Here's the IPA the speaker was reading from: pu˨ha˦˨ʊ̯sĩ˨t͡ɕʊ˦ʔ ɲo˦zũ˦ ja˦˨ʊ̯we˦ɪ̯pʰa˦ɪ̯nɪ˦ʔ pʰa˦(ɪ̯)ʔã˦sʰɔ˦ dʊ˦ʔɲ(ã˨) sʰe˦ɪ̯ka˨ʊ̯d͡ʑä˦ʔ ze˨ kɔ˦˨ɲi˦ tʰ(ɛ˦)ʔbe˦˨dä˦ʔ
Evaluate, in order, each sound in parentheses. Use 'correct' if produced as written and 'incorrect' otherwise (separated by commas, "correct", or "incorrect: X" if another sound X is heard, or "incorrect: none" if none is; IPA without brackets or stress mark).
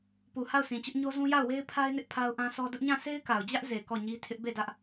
incorrect: ʊ̯, incorrect: ã˦˨, incorrect: ɪ˦